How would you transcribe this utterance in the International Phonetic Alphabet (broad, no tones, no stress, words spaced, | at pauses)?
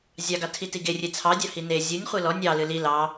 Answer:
zʲɑɡɑtʰiti ɡerʲe t͡sʰɑdʲɑ hine zʲɨnʲ χʷilɔ nʲɑlɨ li lɑ